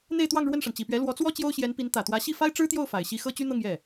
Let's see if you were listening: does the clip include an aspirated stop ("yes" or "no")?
no